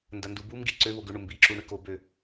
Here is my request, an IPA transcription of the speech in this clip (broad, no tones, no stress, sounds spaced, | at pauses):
n d ɐ n d u b u m ɡ i ǀ ø β o ɡ ʏ ɳ ʊ m b i ǁ u ɳ ʏ k o b ø